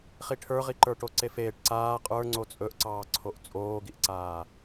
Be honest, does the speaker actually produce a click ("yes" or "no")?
yes